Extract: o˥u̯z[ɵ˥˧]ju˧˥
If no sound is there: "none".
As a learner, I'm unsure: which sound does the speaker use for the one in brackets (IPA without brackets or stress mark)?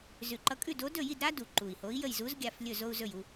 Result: ɵ˥˧